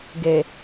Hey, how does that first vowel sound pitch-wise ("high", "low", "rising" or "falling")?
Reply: low